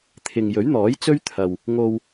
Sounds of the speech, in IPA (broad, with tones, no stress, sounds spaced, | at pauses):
t̪ʰ ɪ˨ ŋ j ɵ˨˥ ɥ n̪ ɔː˨˥ j t͡s ɵ˥ ɥ t̪ʰ ɐ˨ w | ŋ o˧ w